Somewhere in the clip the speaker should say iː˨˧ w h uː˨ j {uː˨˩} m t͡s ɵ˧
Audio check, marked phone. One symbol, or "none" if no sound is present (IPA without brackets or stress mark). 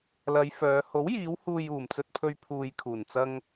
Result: uː˨˩